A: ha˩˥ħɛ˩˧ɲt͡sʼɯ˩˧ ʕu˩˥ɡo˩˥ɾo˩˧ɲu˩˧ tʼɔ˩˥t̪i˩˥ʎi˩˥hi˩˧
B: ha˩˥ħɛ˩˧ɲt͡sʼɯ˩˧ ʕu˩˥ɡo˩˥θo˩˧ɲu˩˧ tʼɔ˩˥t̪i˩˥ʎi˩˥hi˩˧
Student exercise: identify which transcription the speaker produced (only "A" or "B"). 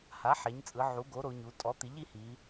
A